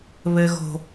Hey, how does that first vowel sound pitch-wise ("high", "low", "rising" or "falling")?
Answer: low